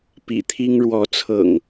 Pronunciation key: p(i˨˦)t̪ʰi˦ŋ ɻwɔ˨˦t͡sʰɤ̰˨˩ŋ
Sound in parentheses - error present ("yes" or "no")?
yes